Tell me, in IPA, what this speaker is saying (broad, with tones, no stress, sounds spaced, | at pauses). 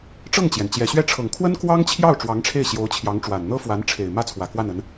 ʈ͡ʂ ɤ˥˩ ŋ t͡ɕ j ɛ˩ n t͡ɕ j ɛ˨˩ ɕ ɥ ɛ˥˩ ʈ͡ʂʰ ɤ˨˩ ŋ kʰ w ə˥ n k w ɑ˥ ŋ t͡ɕʰ j ɑ˥˩ ʊ̯ ʈ͡ʂ w ɑ˧˥ ŋ ʈ͡ʂʰ e˥˩ ɪ̯ ɕ j o˧˥ ʊ̯ t͡ɕʰ j ɑ˧˥ ŋ ʈ͡ʂ w a˨˩ n n̪ ɤ˥ f w a˧˥ n ʈ͡ʂʰ e˨˩ ɪ̯ m ä˥˩ t͡sʰ w ä˨˩ k w a˥˩ n ə˧˥ n